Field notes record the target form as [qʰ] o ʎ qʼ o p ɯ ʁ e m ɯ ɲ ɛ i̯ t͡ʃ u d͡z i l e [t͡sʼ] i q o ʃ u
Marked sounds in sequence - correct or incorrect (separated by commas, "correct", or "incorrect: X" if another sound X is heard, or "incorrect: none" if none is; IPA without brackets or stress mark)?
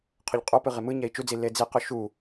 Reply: correct, incorrect: d͡z